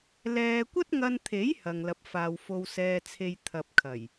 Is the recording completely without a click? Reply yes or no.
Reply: yes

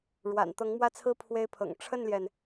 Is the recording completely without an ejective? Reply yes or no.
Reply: yes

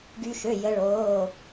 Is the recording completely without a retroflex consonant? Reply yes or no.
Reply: no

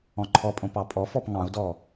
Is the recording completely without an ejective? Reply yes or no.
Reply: no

